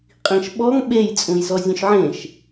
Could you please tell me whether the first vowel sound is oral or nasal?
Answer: nasal